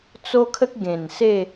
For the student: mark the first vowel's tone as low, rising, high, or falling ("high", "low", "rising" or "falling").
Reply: high